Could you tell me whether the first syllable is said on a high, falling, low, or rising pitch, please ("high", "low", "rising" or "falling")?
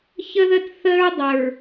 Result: high